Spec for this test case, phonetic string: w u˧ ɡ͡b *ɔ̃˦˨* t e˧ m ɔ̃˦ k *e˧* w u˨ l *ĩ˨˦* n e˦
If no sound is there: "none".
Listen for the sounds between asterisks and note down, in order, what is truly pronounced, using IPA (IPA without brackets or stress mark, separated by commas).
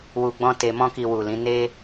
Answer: ɔ̃˦, i˧, ĩ˨˦